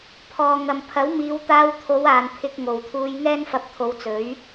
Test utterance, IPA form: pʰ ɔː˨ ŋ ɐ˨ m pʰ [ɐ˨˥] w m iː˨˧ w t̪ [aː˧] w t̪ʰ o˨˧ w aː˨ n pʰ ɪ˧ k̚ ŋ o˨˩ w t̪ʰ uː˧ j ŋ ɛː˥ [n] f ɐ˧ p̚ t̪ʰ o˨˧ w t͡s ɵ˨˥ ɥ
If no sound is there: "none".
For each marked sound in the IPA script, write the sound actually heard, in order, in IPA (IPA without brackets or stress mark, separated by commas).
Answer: ɐ˨˥, aː˧, n